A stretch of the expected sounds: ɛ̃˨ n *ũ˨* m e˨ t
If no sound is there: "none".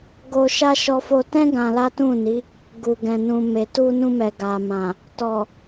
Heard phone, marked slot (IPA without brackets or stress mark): ũ˨